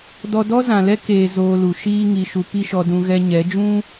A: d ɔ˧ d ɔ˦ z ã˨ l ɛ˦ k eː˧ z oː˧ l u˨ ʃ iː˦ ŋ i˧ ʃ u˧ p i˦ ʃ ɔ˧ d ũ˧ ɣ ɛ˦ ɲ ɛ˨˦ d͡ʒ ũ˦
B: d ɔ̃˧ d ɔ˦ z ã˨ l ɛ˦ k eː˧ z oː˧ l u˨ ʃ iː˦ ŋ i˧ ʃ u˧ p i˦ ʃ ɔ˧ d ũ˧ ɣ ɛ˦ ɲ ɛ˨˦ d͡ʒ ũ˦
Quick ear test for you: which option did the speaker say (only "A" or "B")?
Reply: A